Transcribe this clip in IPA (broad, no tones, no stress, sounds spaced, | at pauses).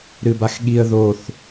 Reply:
ɾ ɨ b a x ɠ i ə̯ ð o θ